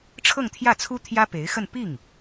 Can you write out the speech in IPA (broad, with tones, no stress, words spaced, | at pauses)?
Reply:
ʈ͡ʂʰɤ˥˧ŋt̪ʰjä˥˩t͡sʰu˥ t̪ʰjä˥pe˧˥ɪ̯xə˥˧n pi˥˩ŋ